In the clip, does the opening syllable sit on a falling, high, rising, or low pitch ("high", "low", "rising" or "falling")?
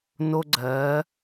high